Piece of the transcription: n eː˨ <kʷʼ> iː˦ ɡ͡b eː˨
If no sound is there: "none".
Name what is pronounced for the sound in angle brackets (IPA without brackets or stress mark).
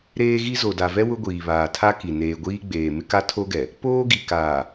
ɡʷ